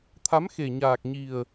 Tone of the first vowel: rising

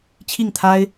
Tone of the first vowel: falling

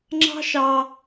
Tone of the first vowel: high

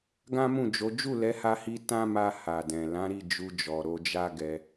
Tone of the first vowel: high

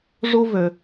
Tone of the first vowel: high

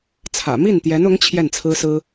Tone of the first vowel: low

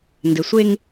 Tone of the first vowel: low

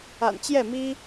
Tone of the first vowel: low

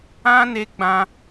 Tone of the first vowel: high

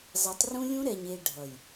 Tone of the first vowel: rising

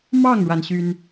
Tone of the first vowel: falling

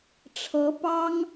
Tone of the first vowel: rising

